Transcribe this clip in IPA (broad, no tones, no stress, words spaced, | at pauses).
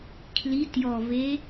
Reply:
kʰli tjɔve